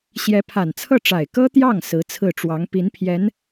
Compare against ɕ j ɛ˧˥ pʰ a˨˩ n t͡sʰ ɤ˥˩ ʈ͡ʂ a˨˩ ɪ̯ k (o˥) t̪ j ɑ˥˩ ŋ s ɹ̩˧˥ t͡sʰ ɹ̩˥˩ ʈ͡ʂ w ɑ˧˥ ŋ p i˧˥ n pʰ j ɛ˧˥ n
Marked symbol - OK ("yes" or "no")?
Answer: no